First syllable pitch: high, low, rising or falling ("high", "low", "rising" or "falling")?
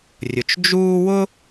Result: low